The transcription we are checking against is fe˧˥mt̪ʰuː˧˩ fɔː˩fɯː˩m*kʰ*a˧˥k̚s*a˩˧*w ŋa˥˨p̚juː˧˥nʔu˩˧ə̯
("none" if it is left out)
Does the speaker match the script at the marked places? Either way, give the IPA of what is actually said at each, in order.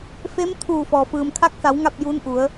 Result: kʰ, a˩˧

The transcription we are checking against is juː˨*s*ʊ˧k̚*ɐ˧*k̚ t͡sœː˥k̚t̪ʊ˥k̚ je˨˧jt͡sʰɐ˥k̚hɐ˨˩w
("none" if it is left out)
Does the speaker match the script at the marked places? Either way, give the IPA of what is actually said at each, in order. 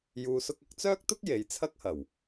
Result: s, ɐ˧

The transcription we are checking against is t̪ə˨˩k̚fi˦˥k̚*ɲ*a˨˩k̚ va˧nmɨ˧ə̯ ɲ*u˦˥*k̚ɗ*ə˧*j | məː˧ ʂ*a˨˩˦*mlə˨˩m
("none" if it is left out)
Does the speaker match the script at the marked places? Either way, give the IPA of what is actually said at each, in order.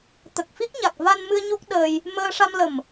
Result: ɲ, u˦˥, əː˧, a˧

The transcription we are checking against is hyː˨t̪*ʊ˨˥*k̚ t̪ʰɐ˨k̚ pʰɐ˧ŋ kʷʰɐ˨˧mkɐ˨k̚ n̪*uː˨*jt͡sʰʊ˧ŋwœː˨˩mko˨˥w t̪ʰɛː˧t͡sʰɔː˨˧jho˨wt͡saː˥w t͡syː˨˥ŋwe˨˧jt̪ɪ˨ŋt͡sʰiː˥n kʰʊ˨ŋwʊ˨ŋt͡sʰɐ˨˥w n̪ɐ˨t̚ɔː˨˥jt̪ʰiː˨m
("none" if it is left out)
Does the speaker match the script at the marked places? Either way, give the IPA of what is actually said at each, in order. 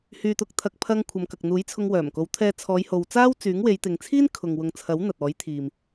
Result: ʊ˨˥, uː˨˥

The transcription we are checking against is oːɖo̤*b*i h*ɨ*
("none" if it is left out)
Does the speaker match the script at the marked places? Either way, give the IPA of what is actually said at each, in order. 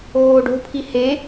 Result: pʰ, e

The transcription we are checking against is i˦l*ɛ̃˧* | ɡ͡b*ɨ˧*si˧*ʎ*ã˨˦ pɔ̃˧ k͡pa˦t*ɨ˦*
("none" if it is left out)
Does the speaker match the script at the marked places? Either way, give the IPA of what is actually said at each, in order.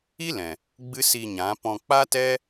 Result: ɛ̃˨, ɨ˦, ɲ, ɛ˦

